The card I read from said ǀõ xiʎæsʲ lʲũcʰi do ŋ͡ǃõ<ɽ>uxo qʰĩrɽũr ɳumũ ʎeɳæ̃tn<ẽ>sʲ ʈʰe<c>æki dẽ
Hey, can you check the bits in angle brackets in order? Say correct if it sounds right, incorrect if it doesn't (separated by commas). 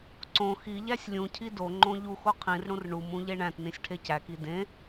incorrect, incorrect, correct